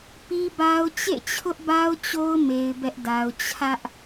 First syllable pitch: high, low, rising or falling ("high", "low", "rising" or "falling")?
high